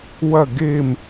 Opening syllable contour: falling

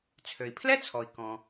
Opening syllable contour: low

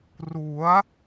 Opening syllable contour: rising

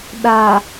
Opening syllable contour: low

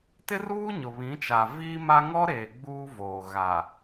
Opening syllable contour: high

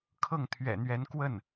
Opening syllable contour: falling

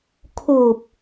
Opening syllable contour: low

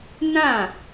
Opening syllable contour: falling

